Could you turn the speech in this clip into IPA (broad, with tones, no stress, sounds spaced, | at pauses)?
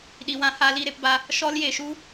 ɗ i˨ w ã˨˦ h a˧ l i˦˨ ɾ e˧ p b a˧ | ʃ ɔ˧ l j e˨ ʃ u˧